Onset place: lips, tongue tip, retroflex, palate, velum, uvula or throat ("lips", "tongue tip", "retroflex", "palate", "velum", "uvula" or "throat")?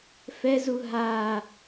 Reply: lips